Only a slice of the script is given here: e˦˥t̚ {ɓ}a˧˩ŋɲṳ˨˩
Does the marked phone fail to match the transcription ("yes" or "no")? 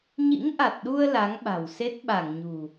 no